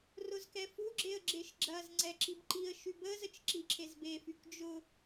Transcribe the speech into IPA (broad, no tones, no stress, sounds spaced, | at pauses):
r ʊ z k ɛ f u ɡ͡ǁ e ə̯ ɡ͡ǁ e ʃ ɡ͡ǁ ɐ z ŋ͡ǀ ɛ ǁ i b ǃ i ə̯ ʃ y b ə z ə t͡ʃ ǁ i ǁʰ e z b e f y k d͡ʒ ʊ